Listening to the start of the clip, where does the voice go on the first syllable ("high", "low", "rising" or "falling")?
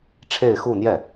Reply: falling